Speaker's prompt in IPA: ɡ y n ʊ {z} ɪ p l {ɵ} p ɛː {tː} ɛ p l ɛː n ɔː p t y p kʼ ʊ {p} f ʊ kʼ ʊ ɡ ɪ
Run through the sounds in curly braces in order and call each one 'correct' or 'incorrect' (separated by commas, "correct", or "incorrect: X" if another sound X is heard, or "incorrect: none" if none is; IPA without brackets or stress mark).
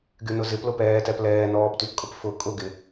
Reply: correct, incorrect: ʊ, incorrect: t, correct